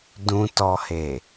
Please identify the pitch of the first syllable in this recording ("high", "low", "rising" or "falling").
low